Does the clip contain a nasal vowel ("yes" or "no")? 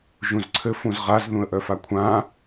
yes